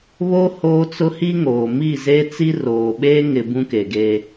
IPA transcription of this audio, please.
βo˦ hoː˦t͡sʊ˦hi˦ŋoː˨ mi˦˨zeː˦t͡si˦ roː˨ɓeː˦ ŋɪ˨ bũ˦ke˨ɡe˦

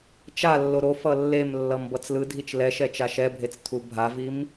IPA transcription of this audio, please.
t͡ʃalːo ɾo fʌlːemlːʌm bʌt͡slɯdʱit͡ʃ lɛ ʃɛt͡ʃaʃɛbʱet͡s tʰubʱavim

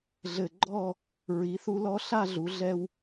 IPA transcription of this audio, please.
ɮɘ˨˩ɡ͡ǃɔ˥˨ | ɹi˩˧θu˧ lɔ˧ ɬa˥˨ɮu˩˧ɮɛ˧w

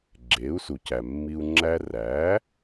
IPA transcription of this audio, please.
ɡ͡ǁeː˩˥u̯su˩cæ˩ mːi˧u̯ ŋ͡ǁæ˧ræ˩˥

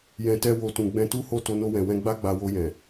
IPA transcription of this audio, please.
jɛ̃˨tɛ˧wo˨tũ˨ ɡ͡bɛ̃˧tu˦ho˦˨ to˧no˧wɛ̃˨wɛ̃˧ ɡ͡ba˦ɡ͡ba˧wo˧jɛ̃˨

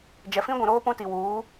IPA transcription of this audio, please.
d͡ʒɛ˨fĩ˦ɡʷũ˨ɾoː˦ pũ˦ti˨ wuː˨˦

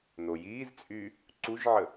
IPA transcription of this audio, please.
nojiːzt͡sʼyː | ǀuʒʕə

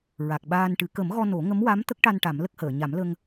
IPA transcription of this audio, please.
ɹa˨˩k̚ɓaː˧nʈɨ˨˩˦ kə˨˩˦mɣɔ˧ no˨˩˦ ŋə˧˥mwa˧˥m t̪ə˦˥k̚ʈa˧n ʈa˨˩˦mlə˦˥k̚həː˨˩˨ ɲa˨˩˦mlə˧ŋ

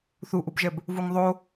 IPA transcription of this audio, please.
θuʔubʒɛb | vuŋðˤo

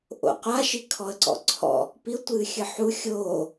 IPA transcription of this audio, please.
ʔo̰qʷaʃi kʰɔə̯ǀɔ̰ǀʰɔ̰ | piʊ̯tʷɨːxʲɨ ħu xʲoː

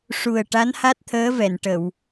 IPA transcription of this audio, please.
ʂu˨˩ə̯ ʈa˧˥nha˦˥t̚t̪ʰəː˧˥vɛ˨˩˨n ʈə˨˩˨w

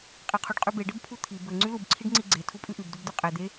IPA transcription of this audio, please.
qʼeqʰuɖqʼʉbe ɖɘbpʰut̪ʰi bɘ ŋ͡ǀʉlub ǀʰiɖŋ͡ǀiɡ͡ǀe tʰupʼʉʔʉb dubd̪ʉqʼe d̪e

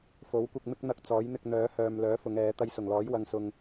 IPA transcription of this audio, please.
fo˨˥wkʷɪ˧k̚ mɪ˧k̚n̪ɐ˨k̚ t͡sɔː˨˥jn̪ɪ˧k̚n̪œː˨˥ hœː˨m lœː˨˥fʊ˨˧ŋ ɛː˨˥ t̪ɐ˧jsʊ˨˩ŋlɔː˨˥j wɐ˨ŋsʊ˨ŋ

